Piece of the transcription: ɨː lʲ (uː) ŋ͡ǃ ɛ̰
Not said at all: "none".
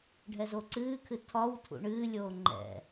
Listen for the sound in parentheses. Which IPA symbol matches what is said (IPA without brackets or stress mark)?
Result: oː